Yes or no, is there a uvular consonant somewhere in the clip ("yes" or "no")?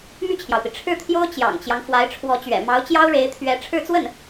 no